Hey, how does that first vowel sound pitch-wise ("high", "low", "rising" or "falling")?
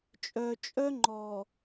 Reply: low